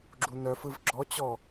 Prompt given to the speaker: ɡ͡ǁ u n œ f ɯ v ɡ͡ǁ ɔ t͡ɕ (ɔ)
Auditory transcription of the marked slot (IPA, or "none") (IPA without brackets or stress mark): ɔ